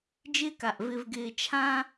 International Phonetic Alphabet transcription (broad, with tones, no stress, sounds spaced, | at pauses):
d͡ʒ ɪː˦ k a˨ ʔ v ɪ˨ v ɡ ɪː˨ t͡ʃʰ ã˦